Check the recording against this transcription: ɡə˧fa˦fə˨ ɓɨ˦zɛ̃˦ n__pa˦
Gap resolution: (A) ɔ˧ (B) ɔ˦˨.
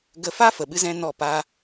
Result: B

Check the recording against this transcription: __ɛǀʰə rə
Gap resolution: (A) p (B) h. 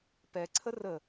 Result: A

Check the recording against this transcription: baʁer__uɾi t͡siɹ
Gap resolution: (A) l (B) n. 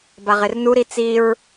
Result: B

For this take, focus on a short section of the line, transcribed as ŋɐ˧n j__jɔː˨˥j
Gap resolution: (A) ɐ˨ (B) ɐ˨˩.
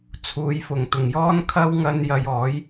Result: A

